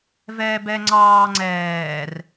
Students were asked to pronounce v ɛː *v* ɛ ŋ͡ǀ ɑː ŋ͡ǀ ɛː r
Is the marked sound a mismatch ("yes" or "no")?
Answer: yes